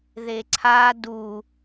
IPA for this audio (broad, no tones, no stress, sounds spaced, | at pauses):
ð e ǀʰ a d u